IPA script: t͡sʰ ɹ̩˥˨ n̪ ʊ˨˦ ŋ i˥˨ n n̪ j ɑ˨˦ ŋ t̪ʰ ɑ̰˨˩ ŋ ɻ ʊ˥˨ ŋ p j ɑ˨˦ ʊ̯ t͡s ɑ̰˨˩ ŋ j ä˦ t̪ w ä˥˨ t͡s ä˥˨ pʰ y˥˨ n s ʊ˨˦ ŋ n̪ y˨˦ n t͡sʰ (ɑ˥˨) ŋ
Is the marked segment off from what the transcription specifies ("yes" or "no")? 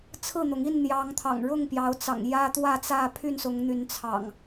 yes